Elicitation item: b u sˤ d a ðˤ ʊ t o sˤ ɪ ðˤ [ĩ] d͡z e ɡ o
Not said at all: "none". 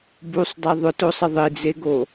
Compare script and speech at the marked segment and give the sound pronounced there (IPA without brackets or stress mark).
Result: i